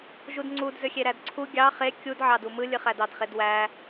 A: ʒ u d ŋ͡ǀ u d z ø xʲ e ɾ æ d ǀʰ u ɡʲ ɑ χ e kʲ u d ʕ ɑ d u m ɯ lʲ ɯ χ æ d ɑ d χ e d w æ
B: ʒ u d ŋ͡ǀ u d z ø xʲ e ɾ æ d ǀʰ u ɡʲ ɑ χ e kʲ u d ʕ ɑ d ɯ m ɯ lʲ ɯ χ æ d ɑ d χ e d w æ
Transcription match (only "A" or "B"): A